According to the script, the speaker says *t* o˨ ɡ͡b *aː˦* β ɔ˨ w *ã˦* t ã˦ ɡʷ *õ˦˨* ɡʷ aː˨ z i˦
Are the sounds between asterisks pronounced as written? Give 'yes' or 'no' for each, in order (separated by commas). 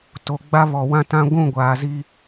yes, no, yes, no